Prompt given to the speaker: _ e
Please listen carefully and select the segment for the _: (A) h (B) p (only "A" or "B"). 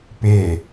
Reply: B